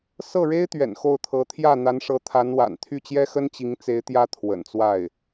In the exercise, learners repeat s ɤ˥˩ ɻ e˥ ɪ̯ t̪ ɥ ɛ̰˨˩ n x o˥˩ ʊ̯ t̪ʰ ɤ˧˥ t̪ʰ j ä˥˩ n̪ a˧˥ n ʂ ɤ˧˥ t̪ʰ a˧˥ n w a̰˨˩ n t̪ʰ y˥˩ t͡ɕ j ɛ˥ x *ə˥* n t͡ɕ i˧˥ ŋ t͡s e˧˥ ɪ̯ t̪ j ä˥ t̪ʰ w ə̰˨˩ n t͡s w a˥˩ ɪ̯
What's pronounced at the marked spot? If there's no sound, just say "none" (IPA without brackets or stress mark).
ə˥